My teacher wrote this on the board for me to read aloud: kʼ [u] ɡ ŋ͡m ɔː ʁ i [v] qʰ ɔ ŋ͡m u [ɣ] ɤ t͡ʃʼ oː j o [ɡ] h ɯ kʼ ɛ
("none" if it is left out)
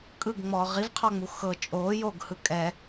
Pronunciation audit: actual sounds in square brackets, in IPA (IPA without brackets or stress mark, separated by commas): ɯ, v, x, ɡ